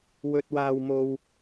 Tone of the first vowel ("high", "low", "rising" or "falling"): high